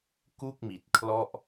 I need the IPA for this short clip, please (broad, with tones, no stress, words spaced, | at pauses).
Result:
ku˥˩k̚mi˨˩t̚kʰlɔ˥˩ʔ